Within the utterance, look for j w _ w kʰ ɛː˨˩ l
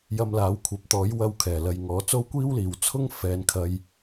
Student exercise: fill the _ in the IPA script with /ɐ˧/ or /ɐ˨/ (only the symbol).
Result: ɐ˧